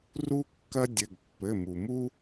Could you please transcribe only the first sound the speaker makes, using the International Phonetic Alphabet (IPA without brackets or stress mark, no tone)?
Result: r